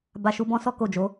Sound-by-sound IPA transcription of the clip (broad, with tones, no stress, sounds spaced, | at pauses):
b a˧ ʃ u˧ b ɔ̃˦ s ɔ˦ k o˦˨ d͡ʒ o˨˦